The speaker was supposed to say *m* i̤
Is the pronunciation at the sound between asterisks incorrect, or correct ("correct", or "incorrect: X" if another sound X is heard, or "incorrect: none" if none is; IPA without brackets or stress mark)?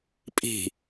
incorrect: pʼ